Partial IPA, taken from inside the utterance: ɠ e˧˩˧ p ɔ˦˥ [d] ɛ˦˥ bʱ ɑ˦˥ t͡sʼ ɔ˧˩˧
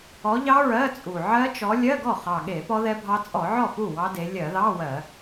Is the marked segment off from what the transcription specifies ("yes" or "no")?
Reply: yes